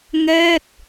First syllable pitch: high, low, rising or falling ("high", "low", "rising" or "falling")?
falling